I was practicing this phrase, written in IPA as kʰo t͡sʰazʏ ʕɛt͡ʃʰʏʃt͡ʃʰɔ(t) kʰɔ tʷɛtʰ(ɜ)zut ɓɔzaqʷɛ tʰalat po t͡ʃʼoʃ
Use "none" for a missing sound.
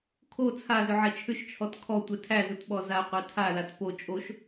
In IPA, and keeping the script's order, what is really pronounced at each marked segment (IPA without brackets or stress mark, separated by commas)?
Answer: t, æ